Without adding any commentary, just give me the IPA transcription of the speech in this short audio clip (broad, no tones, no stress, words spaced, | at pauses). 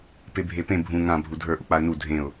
pebʱepẽ bʱũ ŋã bʱudʱə˞ ʔuk͡paə̯nu dʱẽʊ̯